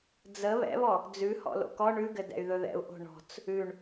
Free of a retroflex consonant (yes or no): no